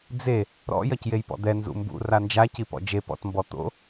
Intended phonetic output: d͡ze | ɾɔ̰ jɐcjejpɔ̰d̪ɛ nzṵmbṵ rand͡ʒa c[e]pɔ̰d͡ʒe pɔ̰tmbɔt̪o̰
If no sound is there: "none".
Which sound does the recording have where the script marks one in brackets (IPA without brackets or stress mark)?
i